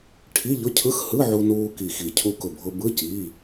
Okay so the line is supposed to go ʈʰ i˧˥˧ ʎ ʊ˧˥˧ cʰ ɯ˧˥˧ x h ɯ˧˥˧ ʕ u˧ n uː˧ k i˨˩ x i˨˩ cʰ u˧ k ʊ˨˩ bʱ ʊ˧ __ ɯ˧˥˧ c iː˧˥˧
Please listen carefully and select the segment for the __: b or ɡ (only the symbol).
b